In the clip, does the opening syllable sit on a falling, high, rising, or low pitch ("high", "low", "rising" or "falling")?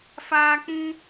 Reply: high